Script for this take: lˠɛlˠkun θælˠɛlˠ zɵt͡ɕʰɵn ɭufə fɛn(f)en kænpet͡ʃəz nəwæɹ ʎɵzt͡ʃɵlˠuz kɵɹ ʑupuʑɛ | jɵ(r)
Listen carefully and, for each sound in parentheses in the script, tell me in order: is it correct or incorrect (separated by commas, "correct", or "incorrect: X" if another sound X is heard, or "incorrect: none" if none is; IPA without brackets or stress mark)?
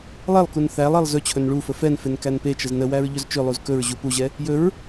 correct, incorrect: ɹ